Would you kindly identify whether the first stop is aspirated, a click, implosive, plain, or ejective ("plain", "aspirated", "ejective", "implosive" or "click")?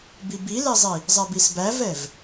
plain